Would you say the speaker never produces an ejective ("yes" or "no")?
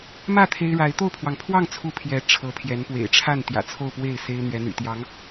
yes